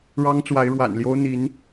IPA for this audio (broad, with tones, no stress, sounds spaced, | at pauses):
ɻ ɑ˥ ŋ t͡s w a˧˥ ɪ̯ ɻ w a̰˨˩ n l j o˥ ʊ̯ n̪ i˧˥ n